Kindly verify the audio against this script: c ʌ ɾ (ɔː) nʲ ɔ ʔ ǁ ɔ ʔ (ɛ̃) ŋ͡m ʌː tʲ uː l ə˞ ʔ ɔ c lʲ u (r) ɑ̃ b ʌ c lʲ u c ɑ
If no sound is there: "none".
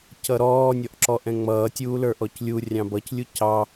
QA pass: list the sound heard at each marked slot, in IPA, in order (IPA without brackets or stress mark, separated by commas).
ɔː, ɛ̃, rʲ